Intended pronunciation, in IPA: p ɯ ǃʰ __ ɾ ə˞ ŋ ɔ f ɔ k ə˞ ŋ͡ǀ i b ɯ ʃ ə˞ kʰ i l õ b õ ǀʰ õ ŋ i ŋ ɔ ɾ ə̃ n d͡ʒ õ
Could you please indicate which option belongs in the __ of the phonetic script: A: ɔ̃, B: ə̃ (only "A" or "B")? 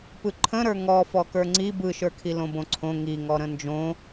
B